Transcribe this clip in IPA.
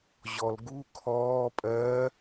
ʑ ɔ l ɡ u kʰ ɔː pʼ ɜː

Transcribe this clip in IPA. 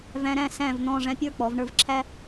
v æ̃˧ ɾ æ̃˥˧ s æ̃˥˧ v n̪ ɔ̃˥˧ ʐ æ̃˥ pʲ ə˞˥˧ k͡p ɔ˩˧ v ɳ ə˞˥˧ v ǁʰ æ˥

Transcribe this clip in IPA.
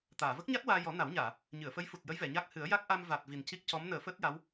t̪ aː˨˩˨ v ə˦˥ k̚ ɲ a˦˥ t̚ w aː˧ j ɔ˨˩˦ n a˨˩˦ w ɲ aː˨˩˨ | ɲ ɨ˨˩˨ ə̯ f ə˧˥ j f u˨˩ t̚ j ə˧˥ j v ɛ˨˩˨ ɲ a˦˥ k̚ h ɨ˨˩˦ ə̯ j a˦˥ k̚ ʔ a˧ m v a˨˩ t̚ v i˨˩ n c i˦˥ k̚ c ɔ˧˥ m n əː˨˩˦ f əː˦˥ t̚ j a˧˥ w

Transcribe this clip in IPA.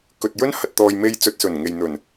k ɵ˨ t̚ j ɵ˥ n h ɐ˨ t̚ t̪ ɔː˨ j m e˧ j t͡s ɵ˧ t̚ s ɵ˨˩ n ŋ e˨ j n̪ ɵ˨˩ n

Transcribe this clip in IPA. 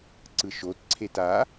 ǀ ɯ ʃ o t ǀʰ e t a

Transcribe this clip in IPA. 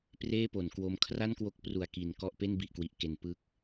p r eː˥˩ p o˩˦ n k w o˧ m kʰ r a˥˩ n k w o˦˥ k̚ p r u˨˩ a̯ k i˨˩ n k ɔ˥˩ ʔ p e˥˩ n b i˨˩ ʔ k w i˨˩ ʔ k e˩˦ n p ɯ˦˥ k̚

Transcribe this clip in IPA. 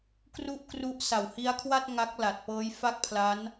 k r u˥˩ ʔ k r u˦˥ ʔ s a˨˩ w h i˦˥ a̯ kʰ w a˥˩ t̚ ŋ a˦˥ k̚ l a˨˩ t̚ p ɤː˦˥ j f a˥˩ k̚ pʰ l a˦˥ n

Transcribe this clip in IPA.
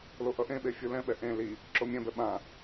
l o ʔ ʌ ʔ ẽ ɓ e fʲ ɯ l ɛ̃ ɓ ɛ ʔ ẽ l i | ǁ o mʲ ɛ̃ b ɛ ɓ ã

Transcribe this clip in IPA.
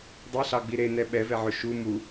dˤ e ɬ ɑ ɡ͡b i ɾ e n ɛ ɓ ɛ v ɛ ʕ ɵ ʃ u m u

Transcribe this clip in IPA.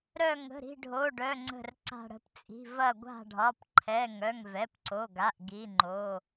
ɾ œ˧˩ ŋ ə̤˩˧˩ ɾ i̤˧˩ ɖʱ o˩˧˩ ɖ œ˩˧˩ ŋ͡ǀ ə̤˧˩ r ǀ a̤˧˩ ɽ ə̤˧˩ p t͡sʼ i̤˩˧˩ v ɐ˧˩ ɡʷ a̤˧˩ ɖʱ ɒ˩˧˩ p ǃʰ ɛ˩˧˩ ŋ œ˩˧˩ ŋ v ɛ˩˧˩ p ǀ o˩˧˩ ɡ a˩˧˩ ʔ ɡ i˩˧˩ ŋ͡ǃ o˩˧˩

